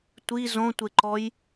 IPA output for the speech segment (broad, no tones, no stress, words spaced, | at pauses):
tʷi zõtʷeǃɔj